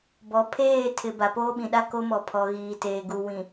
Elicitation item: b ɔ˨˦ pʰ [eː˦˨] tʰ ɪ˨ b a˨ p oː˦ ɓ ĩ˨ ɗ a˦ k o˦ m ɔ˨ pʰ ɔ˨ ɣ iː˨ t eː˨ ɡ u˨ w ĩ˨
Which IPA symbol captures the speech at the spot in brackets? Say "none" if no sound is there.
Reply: eː˦˨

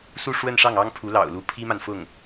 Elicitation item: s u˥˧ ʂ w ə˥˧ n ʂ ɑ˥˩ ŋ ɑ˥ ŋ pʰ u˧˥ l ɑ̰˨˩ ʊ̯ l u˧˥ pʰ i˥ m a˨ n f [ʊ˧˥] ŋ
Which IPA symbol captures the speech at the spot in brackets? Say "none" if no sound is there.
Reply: ʊ˥˩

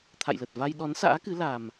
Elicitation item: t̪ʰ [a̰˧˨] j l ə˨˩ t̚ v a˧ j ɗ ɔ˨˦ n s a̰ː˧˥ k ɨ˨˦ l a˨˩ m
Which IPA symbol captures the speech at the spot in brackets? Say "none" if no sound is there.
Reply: a̰˧˨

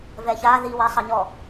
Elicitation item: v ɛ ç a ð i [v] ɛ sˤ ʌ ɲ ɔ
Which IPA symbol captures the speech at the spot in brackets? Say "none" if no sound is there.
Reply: w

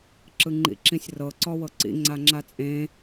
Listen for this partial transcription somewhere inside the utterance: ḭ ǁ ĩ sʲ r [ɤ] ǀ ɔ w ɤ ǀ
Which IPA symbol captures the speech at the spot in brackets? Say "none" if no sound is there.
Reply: ɤ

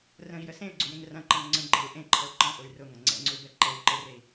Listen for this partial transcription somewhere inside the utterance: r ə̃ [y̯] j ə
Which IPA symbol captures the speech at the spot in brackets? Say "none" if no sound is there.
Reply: i̯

